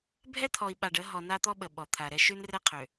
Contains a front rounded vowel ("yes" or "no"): yes